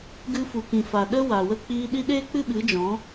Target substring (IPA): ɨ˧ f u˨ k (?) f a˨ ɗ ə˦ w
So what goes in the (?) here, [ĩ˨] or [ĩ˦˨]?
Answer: ĩ˨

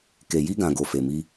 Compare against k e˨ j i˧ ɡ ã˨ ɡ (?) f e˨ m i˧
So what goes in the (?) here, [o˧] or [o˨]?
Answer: o˨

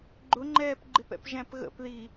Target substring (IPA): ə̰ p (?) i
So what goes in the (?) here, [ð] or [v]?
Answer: ð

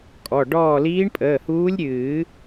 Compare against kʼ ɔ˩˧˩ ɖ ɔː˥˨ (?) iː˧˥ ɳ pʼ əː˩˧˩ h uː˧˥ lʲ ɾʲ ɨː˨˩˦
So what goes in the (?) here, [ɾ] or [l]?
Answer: l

